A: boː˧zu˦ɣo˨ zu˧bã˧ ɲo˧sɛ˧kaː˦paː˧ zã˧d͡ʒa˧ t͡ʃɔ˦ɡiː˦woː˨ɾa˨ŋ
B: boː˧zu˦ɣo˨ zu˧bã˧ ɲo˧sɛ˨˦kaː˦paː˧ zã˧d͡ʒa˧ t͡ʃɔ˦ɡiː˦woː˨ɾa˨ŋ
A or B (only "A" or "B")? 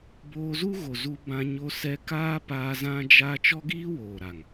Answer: A